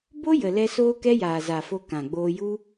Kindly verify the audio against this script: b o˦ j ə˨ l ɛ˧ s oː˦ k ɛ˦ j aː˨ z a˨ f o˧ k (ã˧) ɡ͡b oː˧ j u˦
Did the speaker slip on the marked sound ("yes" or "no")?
yes